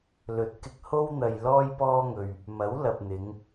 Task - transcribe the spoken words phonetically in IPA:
l ɵ˨˥ t̚ k ɪ˧ k̚ h o˥ w n̪ ɐ˧ j l ɔː˥ j p ɔː˥ ŋ ɵ˧ ɥ | m ɐ˨˥ w l ɐ˨ p̚ n̪ ɪ˨˧ ŋ

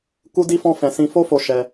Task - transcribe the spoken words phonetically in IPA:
k u˦ d i˦ f ɔ̃˦ f ɛ̃˧ s ĩ˧ f o˦ f o˧ ʃ ɛ˧

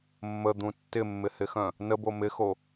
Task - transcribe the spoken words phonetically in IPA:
mː ə d̪ ũ tː ɪ mː ɪ h ɪ x œ̃ | n ə b o m ɪ x o

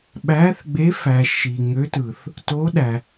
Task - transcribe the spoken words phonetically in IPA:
ɓ æ˧˥ θ ɡ͡b e˧˥ f æ˨ ʃ i˨ ŋ ø˧˥ t ɯ˨ θ | t o˧˥ ɗ æ˨

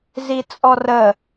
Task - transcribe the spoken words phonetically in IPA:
z i t͡sʼ ɔ r ə

